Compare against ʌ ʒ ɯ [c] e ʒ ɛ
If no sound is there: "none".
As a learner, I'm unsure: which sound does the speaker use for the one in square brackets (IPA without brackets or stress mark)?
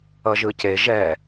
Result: c